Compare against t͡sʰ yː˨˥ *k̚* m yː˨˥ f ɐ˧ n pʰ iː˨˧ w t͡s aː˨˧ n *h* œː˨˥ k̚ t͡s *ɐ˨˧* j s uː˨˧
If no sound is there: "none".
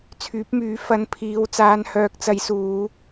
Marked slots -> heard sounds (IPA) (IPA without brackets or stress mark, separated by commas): p̚, h, ɐ˨˧